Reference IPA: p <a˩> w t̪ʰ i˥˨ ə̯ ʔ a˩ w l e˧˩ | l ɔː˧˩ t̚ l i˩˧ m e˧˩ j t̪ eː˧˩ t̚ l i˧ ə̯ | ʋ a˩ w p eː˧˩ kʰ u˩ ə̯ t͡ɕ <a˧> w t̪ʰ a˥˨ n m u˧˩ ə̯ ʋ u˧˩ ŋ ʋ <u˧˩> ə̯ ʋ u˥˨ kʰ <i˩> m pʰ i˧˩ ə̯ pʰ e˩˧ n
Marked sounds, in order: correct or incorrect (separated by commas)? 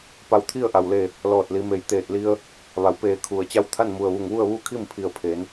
incorrect, correct, incorrect, incorrect